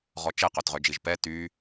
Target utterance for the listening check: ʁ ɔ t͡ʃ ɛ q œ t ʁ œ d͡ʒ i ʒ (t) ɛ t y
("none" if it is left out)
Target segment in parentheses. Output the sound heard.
p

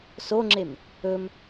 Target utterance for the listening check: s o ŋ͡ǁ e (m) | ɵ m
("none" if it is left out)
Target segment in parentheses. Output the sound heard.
m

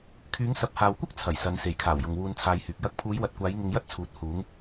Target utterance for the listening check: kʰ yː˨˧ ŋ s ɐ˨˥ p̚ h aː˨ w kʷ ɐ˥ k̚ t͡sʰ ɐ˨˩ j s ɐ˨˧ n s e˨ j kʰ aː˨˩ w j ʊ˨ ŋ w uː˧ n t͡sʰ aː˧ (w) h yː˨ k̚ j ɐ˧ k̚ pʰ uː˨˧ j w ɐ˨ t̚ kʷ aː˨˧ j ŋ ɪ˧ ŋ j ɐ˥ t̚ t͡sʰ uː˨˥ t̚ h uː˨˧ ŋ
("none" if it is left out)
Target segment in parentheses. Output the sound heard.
j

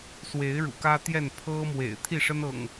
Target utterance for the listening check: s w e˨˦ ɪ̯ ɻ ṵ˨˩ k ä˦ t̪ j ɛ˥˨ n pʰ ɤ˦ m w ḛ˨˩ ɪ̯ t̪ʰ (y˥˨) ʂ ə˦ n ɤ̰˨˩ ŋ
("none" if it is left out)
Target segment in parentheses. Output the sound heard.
i˥˨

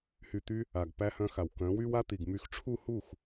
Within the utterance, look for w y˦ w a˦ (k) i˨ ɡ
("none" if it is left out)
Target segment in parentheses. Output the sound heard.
t̪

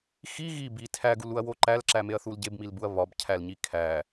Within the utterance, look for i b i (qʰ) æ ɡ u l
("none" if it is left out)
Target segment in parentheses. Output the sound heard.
tʰ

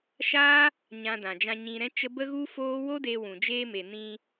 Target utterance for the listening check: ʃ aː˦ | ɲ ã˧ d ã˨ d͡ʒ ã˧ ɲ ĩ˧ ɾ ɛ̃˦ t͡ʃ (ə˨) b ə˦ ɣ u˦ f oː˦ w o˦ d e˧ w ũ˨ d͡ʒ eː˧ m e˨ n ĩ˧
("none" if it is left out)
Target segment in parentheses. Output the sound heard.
ə˦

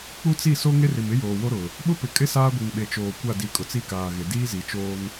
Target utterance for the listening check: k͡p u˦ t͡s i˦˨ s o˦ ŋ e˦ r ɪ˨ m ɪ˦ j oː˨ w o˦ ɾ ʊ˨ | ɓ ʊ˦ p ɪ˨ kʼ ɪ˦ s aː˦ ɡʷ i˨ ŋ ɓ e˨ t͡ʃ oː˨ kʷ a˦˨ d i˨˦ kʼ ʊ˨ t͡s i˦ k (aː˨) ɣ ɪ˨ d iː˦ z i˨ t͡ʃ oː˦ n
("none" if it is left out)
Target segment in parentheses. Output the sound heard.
aː˨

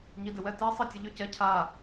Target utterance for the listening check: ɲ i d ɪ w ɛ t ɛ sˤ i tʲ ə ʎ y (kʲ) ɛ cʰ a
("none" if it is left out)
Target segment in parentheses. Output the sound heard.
c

